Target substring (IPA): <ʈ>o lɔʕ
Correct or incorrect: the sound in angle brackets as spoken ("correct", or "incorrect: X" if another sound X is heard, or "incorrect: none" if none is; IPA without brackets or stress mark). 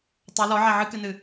incorrect: tˤ